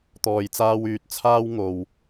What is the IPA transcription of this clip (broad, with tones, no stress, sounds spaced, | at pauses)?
t̪ ɔː˧ j t͡s aː˥ w yː˧ t̚ t͡sʰ aː˥ w ŋ o˨ w